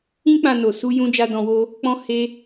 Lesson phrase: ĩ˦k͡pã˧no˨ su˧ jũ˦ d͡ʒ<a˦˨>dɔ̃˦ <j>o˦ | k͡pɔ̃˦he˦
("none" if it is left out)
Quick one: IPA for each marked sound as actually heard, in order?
a˦, w

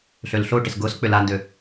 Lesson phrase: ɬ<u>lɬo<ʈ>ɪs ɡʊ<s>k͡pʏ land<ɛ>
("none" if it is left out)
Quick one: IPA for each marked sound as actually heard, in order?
ø, ʈ, s, ø

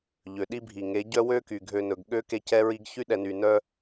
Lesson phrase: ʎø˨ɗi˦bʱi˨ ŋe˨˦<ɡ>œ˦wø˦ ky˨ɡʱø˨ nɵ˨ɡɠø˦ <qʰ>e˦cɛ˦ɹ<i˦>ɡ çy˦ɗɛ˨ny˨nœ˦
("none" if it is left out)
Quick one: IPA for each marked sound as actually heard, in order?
ɟ, k, i˦

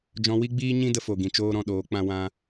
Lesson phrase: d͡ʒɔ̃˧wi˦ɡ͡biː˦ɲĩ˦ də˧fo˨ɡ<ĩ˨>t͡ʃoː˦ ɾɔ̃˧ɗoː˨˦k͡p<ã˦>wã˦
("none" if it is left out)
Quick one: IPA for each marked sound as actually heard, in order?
ĩ˨, ã˦

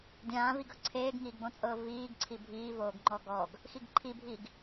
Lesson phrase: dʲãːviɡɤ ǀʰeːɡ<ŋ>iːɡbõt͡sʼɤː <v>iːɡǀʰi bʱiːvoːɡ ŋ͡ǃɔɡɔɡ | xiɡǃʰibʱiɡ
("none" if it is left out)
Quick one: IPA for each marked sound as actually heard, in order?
ŋ, v

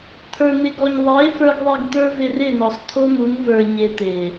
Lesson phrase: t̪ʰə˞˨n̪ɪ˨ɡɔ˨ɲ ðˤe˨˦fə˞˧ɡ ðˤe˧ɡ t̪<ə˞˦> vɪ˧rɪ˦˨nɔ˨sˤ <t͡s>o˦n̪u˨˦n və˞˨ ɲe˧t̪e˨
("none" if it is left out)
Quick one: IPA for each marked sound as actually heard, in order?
ə˞˦, t̪ʰ

